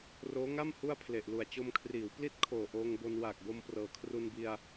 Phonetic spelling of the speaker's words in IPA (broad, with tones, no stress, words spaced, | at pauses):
roː˦˥ŋa˥˩m hu˥˩a̯pʰle˨˩ʔlu˨˩a̯ t͡ɕo˧mkʰriː˩˦wpli˥˩t̚kʰoː˨˩ ʔoː˧ŋbo˧nwaː˨˩k̚ bo˧mprɤː˩˦kʰru˧nbi˧a̯